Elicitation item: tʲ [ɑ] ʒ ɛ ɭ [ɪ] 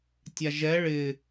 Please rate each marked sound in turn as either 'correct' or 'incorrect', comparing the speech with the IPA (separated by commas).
incorrect, correct